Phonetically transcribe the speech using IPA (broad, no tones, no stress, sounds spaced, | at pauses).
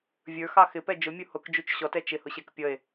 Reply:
vʲ ə˞ x ɑ x ɪ p ɛ d͡ʒ ʊ mʲ u h ʊ k d͡ʒ u t͡ʃ ɕ ɔ t ɛ t͡ʃ ɪ h ʊ ɕ ɛ k pʲ ʌ e̯